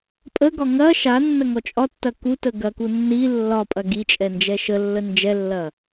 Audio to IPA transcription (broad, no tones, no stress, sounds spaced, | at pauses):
pʼ ə ɡ ɒ ŋ ɐ ʃ a nː ɐ ŋ ɔ t͡ʃʼ ɒ tː ɐ k u t ə ɡ ɐ k u nː i lː ɒ pʼ ɐ ɡ i t͡ʃʼ ɛ n d͡ʒ ɛ ʃ ə lː ə n d͡ʒ ɛ lː ɐ